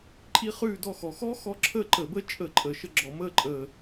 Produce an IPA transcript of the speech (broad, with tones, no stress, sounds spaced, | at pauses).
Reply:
ǃʼ i˦˥ χ ʉː˥˨ d ɔ˥˨ x ɔ˨˩ x ɔ˦˥ x ɔ˦˥ ǁʰ əː˥˨ ǃ ə˧˩˧ b əː˦˥ t͡ʃʼ ə˧˩˧ ǃʼ əː˨˩ ʃ ə˥˨ ɡ͡ǁ ɔ˧˩˧ m əː˥˨ ǃʼ əː˨˩